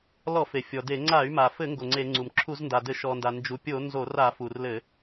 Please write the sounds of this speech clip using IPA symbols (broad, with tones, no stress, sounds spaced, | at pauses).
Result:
l ɔ˧˩˧ f e˩ fʲ ɔ˩ d e˧˩˧ ŋ͡ǀ a˧˩˧ y̯ m a˩ f ɘ˧˩˧ ŋ ɡ o˩ ŋ͡ǀ e˧˩˧ ŋ͡ǀ u˩ m ǁʰ u˧˩˧ z n d a˩ d ɘ˧˩˧ ʃ ɔ˩ n d a˩ n d͡ʒ u˩ pʲ o˧˩˧ n z o˧˩˧ r a˧˩˧ f u˩ r l ɘ˧˩˧